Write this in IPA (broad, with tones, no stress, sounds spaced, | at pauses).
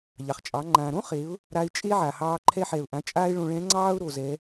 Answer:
ʎ ɑ˩ χ t͡ʃʼ ɑ˩˧ ŋ͡ǃ ã˩ ɾ õ˥ χ e˩˧ ʊ̯ | ɾ a˧ ɪ̯ t͡ʃʼ e˥ ʕ a˩ h ɑː˧ ǃʰ ɛ˧ ħ ɛ˩ ʊ̯ ʔ ã˩˧ t͡ʃʼ aː˧ ɪ̯ ɭ õ˧ ɭ ɛ̃˧˥ ŋ͡ǀ ɑː˥ ʊ̯ ɾ o˩ z ɛ˩˧